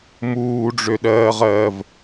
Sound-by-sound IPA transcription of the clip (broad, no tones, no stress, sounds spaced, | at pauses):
m uː ɖ͡ʐ ø ɗ ɜː ʁ ɜː v